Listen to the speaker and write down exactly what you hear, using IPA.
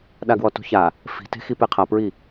ɗaɡwɔtṳça | fi̤te̤xi peqʰapɹi

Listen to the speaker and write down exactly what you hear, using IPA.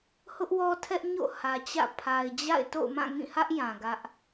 hʊ˦ʔwɔ˦tʰɛ˦ʔ ɲo̰˦˨ hä˨t͡ɕä̰˦˨ pʰa˨ɪ̯d͡ʑa̰˦˨ɪ̯ to̰˦˨ʊ̯mã˦˨ŋĩ˦˨hä˦ʔ jã˨ɡä˦ʔ

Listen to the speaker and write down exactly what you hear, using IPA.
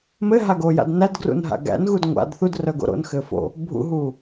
mɘɦaɡoja̰d nædɡrṵnɦa̰ ɡæ̰nɣud ŋʷa̰d θudrœɡo̰ ɾo̰nxɘ fo̰ | bʱṵɦuː

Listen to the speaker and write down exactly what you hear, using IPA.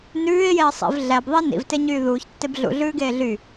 nʉːɪ̯jeə̯ sˤḭv ɮæbðˤi nḭvteɲyː ðuːçtːeb ɮṵɮʉːɡeː ɮy

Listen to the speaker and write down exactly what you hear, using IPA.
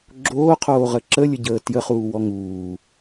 ɡ͡ǁoːqʰoːʁə ǁəlʲəɟəː tjəχuːwɔ ŋuː

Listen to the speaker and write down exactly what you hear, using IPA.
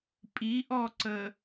pʼiʔɔǀə

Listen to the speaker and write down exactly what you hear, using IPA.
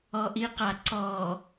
ɔʔiqa ǀɔ

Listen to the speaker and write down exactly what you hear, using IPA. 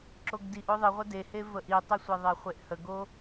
ǁoɡdiʔ oðˤiʁʷə dehe vəʔitˤəsʷe ðˤeχʷeʔhəɡo

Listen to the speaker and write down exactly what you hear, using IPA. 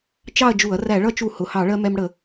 t͡ʃɑ˥˧ɐ̯d͡ʒu˧˩˧ɐ̯ ræ˧˩˧ɭʌ˥˧t͡ʃu˧˩˧ hʊ˩˧˩hɑ˧˩˧ɭɜ˧ mɛ˧mɽə˧˩˧

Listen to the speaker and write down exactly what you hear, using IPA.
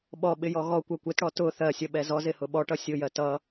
ɓɔɓɪjɔ ɣɔkʷɜ kʷɪtɽɔ tʊ θɜsʲʌɓɛ zɔzɪhʊ ɓɔʈʌ sʲʊjɜt ʌ

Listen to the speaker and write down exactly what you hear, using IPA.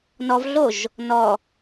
nɔvɮoʒ | nɔ

